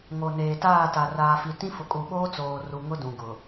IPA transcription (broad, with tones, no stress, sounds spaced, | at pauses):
ŋ o˨ n eː˨ t aː˦˨ t a˨ r aː˨ f i˨ t ĩ˦ f ʊ˨ kʼ u˨ ɓ oː˦ t͡s oː˨ r u˨ ŋ ʊ˦ d ũ˨ ɡ ʊ˨